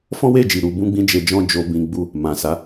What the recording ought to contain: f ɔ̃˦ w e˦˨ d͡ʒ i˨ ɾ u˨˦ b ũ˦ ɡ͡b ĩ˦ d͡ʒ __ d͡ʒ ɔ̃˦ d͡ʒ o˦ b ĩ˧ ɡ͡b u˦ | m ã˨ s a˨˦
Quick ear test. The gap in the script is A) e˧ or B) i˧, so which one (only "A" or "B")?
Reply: A